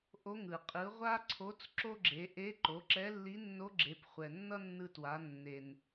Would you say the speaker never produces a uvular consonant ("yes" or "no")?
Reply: no